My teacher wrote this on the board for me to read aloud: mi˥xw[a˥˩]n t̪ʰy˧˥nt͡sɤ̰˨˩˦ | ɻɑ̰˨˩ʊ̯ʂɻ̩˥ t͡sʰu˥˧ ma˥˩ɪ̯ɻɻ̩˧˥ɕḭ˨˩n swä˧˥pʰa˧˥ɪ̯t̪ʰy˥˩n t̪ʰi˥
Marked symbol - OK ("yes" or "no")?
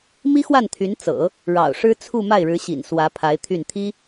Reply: yes